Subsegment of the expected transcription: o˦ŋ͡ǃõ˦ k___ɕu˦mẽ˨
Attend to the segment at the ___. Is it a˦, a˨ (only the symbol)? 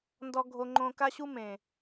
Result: a˦